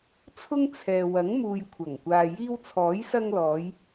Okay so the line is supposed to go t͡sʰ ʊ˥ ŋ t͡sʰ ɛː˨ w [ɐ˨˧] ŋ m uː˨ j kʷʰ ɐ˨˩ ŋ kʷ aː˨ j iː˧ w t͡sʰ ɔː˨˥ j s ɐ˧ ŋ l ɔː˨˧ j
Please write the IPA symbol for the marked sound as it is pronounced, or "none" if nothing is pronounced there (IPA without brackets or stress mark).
ɐ˨˥